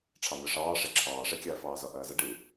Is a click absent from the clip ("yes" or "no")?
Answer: no